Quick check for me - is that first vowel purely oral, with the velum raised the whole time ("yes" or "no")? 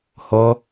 yes